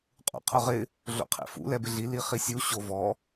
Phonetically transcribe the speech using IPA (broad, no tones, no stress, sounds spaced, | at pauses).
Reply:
qʼ ṵ qʰ ʊ ʁ ɪ | ɮ o̰ qʰ ḛ f ṵ l ɛ b ɪ ɮ i l i χ i sʲ u ɕ o v ɔ